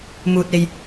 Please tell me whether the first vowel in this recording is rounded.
yes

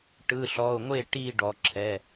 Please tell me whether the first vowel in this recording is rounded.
no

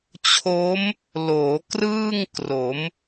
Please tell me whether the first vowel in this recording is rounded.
yes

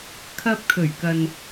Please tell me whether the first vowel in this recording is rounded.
no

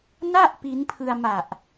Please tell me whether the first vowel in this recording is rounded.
no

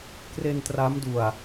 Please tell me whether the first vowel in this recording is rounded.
no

